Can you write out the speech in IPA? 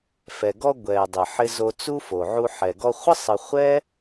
fɛ˩ɡɔ˧ ɡʷɛ˩dˤə˩ ħɪ˧zo˧t͡su˥ fo˩ʕu˧ ħɛ˩ɡɔ˧χʷə˥ sˤə˧ χʷɛ˥

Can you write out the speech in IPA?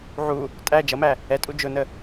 ʕu | tʼæ d͡ʒʌmæ | ɛtʼu d͡ʒʊnə

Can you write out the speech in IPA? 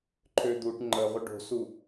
ǃʰød̪uʈ ŋ͡ǃəʁʷə ɖo̤su

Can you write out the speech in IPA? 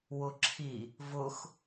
wʊǁʰi | vʊx

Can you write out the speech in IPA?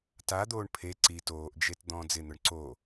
tad̪oːɳ pʰe ǀi toːʔd͡ʒet d̪ɔ̃ːd͡zɪn̪ʊɳ ǀo

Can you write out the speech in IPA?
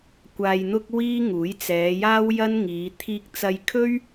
kʷaː˧jn̪ʊ˥k̚wiː˥ŋuː˨˥j t͡sɛː˨˧jaː˥wjɐ˥nŋiː˨˧ t̪ʰiː˧k̚t͡sɐ˧j kʰɵ˥ɥ

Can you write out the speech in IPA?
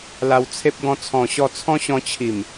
la˧wt͡sʰe˦p̚ ɡɔ̃˧t͡sʰɔ̃˨˩ɕɔ˧t͡sʰɔ̃˦ ɕɔ̃˧t͡ɕʰi˨˩m

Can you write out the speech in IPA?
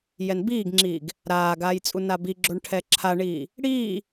jɛnbiːɡŋ͡ǁiːɡ | ɾaːɡaːjt͡sʼu nabiɡ͡ǁoɳ ʈʰɛǁʰaɳiː | ɽiː

